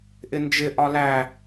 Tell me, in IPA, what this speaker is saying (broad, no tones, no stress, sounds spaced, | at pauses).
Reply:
ʔ ɪ n d͡ʒ ɪ ʔ ɒ l æ